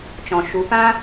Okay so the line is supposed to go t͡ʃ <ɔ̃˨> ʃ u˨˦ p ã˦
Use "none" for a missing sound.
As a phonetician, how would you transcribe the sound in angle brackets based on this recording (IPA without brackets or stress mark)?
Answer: ɔ̃˨